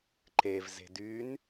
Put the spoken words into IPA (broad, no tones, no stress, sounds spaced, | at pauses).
ǃ e v z e̤ d y n